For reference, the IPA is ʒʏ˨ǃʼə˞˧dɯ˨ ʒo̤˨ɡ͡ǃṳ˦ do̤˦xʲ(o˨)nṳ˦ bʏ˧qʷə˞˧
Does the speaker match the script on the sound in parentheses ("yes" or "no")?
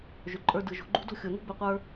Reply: yes